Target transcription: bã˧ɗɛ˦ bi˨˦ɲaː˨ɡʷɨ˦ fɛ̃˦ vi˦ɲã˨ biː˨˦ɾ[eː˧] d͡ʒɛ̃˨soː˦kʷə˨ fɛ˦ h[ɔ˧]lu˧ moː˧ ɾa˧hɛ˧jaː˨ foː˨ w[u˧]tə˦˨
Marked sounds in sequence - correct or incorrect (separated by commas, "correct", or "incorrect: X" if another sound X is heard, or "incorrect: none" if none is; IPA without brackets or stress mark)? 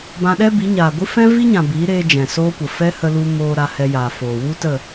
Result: correct, incorrect: ə˧, incorrect: u˦